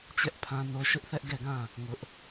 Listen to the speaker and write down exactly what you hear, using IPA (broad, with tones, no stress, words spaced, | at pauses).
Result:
t͡ɕɛ˦ʔpʰã˦no˦ ʃʊ˦ʔθɛ˦ʔɡɛ˦˨ɡã˦˨ | ŋʊ˦ʔ